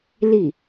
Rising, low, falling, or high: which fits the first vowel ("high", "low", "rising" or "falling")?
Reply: falling